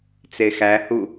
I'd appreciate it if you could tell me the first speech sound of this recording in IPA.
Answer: t͡s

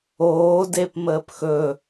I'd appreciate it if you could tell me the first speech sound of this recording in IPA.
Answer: oː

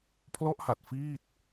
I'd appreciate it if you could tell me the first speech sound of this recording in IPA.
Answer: pʰ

